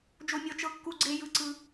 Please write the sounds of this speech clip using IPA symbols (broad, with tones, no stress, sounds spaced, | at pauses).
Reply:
d͡ʒ o˦ mʲ ɔ˦ t͡ʃ ɤ˦ kː u˦ ɡ͡ǀ e˦ j ɯ˦ ǀ ɯ˦